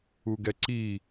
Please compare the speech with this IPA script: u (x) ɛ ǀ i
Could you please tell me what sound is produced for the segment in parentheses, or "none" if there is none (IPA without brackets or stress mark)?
ɡ